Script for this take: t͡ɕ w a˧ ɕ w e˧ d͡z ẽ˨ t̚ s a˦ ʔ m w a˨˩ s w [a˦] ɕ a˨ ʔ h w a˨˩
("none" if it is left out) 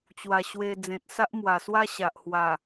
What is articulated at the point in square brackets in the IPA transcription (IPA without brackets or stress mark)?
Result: a˦